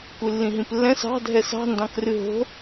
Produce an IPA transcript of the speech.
kʷ ɨ lː ĩ ɦ ĩ p lː ɛ̃ s ɑ̤ dʱ ɛ s ɑ̤ n d ɑ̃ k r ɨ ɦ o̤

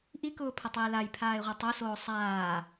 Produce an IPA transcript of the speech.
ʔ i k ʊː pʰ ə tˤ iː l a j pʰ aː ɪ̯ ʁʷ a tˤ o s oː sˤ aː

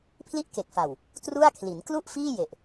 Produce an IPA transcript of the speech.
pʰ l i˥˩ ʔ k e˨˩ k̚ f a˨˩ w | t r u˥˩ a̯ kʰ l i˩˦ n k l u˥˩ ʔ f iː˥˩ j e˨˩ ʔ

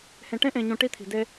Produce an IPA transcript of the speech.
h ẽ˨ ʈ ẽ˦ ʔ ẽ˨ ɲ ũ˨ ʈ i˦ t̪ʰ i̤˨ d e˦

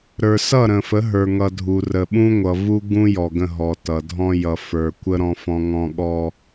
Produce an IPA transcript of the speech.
ɾ ə˞˨ s ʌ˦˨ ɾ ə̃˨ f ə˨˦ ɦ ə˞˨ ŋ ʌ˨ dʱ u˨ r ə˨ ɓ ũ˦ ŋʷ ʌ˨ v u˦ ɡ ũ˦ j ɔ˨ ɡ ə̃˦˨ ɦ ɔ˨ t ʌ˨ dʱ ɔ̃˦ j ʌ˨ f ə˞˨ kʷ ə˦ ɾ ɔ̃˦ f ɔ̃˦ ŋ ɔ̃˦ ɠ ɔ˦

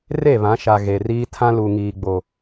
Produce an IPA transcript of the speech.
r e˦˨ β ã˨˦ ʃ a˨ ɣ e˨ r iː˦ tʰ ã˦ l u˨ ŋ iː˨ ɡ͡b o˨

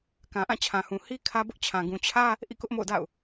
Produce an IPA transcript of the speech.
k ã˨ ʔ ã˦˨ t͡ɕʰ ã˨ h ũ˨ h i˦ kʰ ä˦ b ʊ˦ ʔ t͡ɕʰ ã˨ ɡ ũ˨ t͡ɕʰ ä˦ | ʔ ḭ˦˨ k ʊ˦ ʔ m o̰˦˨ ʊ̯ d a̰˦˨ ʊ̯

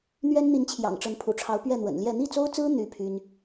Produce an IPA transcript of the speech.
n̪ ɥ ɛ˥ n n̪ i˧˥ n t͡ɕʰ j ɑ̰˨˩ ŋ ʈ͡ʂ ə˧˥ n pʰ ṵ˨˩ ʈ͡ʂʰ ɑ˧˥ ʊ̯ p ɥ ɛ˥˩ n̪ w ə̰˨˩ n l j ɛ˥˧ n̪ i˥˩ t͡s o˥ ʊ̯ t͡s ɹ̩˥ n̪ y˥ pʰ y˥ n

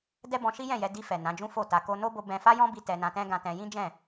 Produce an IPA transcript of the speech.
d ɛ˦ b ɔ̃˧ ʃ i˦ j ɛ̃˦˨ j ɛ˧ d i˧ f ɛ˨ n ã˨˦ d͡ʒ ũ˦ f o˦˨ t a˧ k o˧ n o˦ b o˧ b ɛ̃˧ f a˦ j ɔ̃˦ b i˧ t ɛ˧ n ã˧ t ɛ̃˦ ɡ ã˧ t ɛ̃˧ j ĩ˦ d͡ʒ ɛ̃˦˨

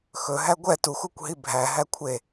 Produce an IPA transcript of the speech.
x ɵ ɦ æ ɡʷ ɛ t u x u kʷ ɦ i bʱ æ ɦ æ kʷʰ e

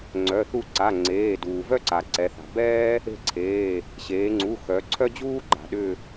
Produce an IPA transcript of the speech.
ŋ͡ǀ œ˩˧˩ θ u˦˨ ǀ a˩˧˩ ŋ͡ǀ eː˩˧˩ d uː˩ v œ˥ ǀ a˩ ǀ ɛ˩˧ θ a̤˩ b ɛː˥ | e̤˦˨ ǀʰ eː˩˧˩ | ɕ eː˩˧ ŋ͡ǀ u˩˧˩ x œ˩˧ ǀʰ œ˥ d͡ʑ uː˥ ɡ͡ǃ a̤˩ ɗ ʏ˦˨

